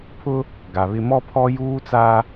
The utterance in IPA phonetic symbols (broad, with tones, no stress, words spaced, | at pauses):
pʰʊ˦ | ɡa˨βɪ˦ mɔ˦pʰɔ˦juː˦ t͡sa˦